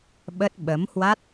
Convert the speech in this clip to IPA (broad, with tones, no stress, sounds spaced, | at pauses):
ɓ ə˦˥ t̚ ɓ ə˨˦ m h w a˦˥ t̚